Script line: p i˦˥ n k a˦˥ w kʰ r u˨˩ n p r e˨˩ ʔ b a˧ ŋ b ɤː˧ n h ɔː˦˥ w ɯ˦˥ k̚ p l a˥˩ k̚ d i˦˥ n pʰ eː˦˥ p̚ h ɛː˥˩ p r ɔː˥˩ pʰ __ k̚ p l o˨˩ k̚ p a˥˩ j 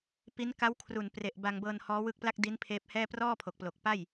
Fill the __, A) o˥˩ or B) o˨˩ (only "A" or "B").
B